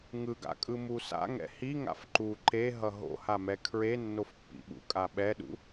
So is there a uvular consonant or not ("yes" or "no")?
no